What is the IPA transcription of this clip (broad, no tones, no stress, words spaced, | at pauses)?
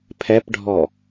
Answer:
pʰɛpɖʱɔ